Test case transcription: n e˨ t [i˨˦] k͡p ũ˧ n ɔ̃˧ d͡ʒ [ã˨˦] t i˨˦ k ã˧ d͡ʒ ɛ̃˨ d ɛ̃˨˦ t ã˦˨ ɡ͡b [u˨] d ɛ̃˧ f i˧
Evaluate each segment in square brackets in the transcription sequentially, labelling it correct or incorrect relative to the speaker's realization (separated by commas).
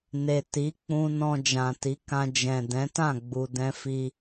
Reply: correct, incorrect, correct